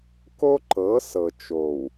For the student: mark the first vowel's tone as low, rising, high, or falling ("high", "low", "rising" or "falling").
high